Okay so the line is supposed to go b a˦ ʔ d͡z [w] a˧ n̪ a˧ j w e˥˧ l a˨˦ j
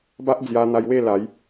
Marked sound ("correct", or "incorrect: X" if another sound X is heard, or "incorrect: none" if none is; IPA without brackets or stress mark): incorrect: j